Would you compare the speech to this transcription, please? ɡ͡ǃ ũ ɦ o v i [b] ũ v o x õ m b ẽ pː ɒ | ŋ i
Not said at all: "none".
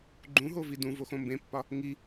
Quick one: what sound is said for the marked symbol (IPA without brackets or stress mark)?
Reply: d